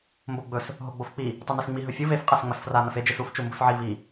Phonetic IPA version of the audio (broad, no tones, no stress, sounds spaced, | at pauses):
m b o ɡ͡b ɵ s | ɦ o ɡ͡b o f k͡p i | tˤ i n i s ŋ͡m i ɦ ɵ fʲ ɨ v e f qʼ a s ŋ͡m ɐ s f r a n ɐ f e d͡ʒ ɨ s u f t͡ʃ u m b u s ʕ i v i